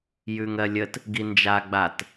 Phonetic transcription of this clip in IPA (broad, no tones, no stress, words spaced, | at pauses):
jʉŋɜlʲət | ɡind͡ʒa ɡ͡bat